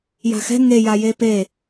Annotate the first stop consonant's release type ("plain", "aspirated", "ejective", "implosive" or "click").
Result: plain